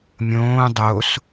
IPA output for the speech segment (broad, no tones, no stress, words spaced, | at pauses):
mʲõː dˤos